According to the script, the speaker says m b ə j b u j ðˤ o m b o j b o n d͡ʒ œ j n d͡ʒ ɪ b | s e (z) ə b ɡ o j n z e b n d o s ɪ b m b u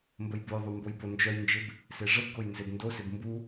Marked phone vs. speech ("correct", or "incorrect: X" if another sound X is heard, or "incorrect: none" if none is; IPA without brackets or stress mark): incorrect: ʐ